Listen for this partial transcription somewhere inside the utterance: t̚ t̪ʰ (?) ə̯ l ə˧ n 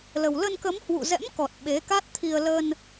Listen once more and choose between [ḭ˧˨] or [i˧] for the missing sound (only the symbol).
i˧